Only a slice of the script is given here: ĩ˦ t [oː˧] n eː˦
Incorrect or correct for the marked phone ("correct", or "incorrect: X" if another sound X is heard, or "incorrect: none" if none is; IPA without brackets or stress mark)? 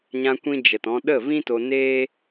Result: incorrect: o˧